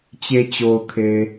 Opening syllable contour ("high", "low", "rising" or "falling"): low